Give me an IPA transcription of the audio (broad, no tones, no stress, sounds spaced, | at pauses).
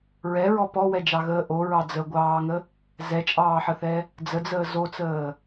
ɹ ɛ ɹ ɔ p ɔ w ɛ d͡ʒ ɑ ɣ əː ʔ o ɹ ɑ d͡z ə ɡʷ ɑː ŋ ə | z ɛ t͡ʃʼ ɑː ħ ə θ ɛ | d͡z ə d͡z əː z o t͡s əː